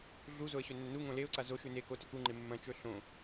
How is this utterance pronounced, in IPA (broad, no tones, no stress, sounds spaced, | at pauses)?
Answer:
ɮ u z o ə̯ ɕ ɵ nː ɵ n u ŋ õ l e ʊ̯ ǀ a z o ʃ ʉ n e k o t ɵ k u ŋ͡ǃ e mː ɐ̃ t͡ʃ ɵ ɬ õ